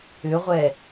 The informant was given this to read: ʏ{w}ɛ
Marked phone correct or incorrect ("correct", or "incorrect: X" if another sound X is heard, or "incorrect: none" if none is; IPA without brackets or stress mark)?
incorrect: ʁʷ